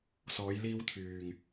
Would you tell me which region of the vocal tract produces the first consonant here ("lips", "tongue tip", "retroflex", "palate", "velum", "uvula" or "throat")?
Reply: tongue tip